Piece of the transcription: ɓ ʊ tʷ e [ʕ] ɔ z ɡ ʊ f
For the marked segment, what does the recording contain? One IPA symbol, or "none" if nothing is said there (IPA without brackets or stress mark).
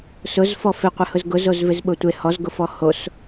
h